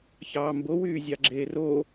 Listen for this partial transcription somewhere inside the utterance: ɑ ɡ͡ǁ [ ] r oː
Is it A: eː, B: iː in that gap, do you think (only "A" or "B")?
A